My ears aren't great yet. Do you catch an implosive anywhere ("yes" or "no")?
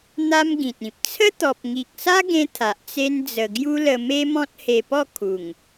no